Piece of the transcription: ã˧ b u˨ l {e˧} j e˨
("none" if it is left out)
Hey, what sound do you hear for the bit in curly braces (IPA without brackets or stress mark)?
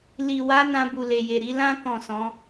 e˨